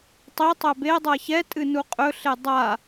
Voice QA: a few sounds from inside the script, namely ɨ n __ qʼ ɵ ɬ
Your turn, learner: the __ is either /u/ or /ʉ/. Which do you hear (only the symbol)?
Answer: u